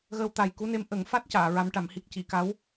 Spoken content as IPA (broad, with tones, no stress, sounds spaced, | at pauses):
ɣ əː˧ w t̪ a˨˩ j k u˧˥ n e˧˥ m ʔ ə˨˩˦ ŋ f a˦˥ t̚ c aː˨˩˨ ɹ a˧˥ m ʈ a˨˩˦ m h i˦˥ k̚ c i˨˩˨ k a˧˥ w